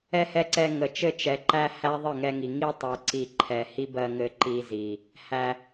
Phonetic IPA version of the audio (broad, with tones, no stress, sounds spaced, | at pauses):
ɛ˧ h ɛ˧ ǀ ɛ˧ ŋ ə˨ t͡ʃ ɘ˧ t͡ʃ ɛ˨ ǃ æ˧ h æ˦ ðˤ ɘ˦˨ ŋ ɛ˧ ŋ i˨ ŋ i˧ tˤ ɛ˨ ǀ i˨ ǃʰ ɛ˨ h i˦ b ɜ˧ ŋ ɘ˧ ǃ i˧ z i˨ | h æ˧